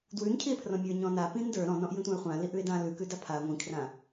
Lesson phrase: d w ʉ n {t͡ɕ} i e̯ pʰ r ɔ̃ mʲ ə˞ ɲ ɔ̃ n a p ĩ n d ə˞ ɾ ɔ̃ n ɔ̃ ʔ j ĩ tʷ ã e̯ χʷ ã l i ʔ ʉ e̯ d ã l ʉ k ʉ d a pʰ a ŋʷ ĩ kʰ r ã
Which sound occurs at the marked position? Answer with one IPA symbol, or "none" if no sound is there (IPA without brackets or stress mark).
cʰ